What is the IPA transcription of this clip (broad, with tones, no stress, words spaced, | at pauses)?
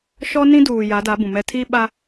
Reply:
ʃɔ˦nĩ˦duː˨ ja˨˦da˨˦ bũ˨mɛ˦ tʰi˦ɓa˦